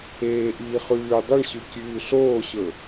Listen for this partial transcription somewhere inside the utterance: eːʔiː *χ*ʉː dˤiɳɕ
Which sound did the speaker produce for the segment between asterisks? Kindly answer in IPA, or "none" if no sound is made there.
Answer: χ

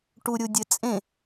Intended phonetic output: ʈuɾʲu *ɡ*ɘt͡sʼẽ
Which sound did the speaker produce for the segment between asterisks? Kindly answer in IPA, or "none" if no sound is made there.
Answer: dʲ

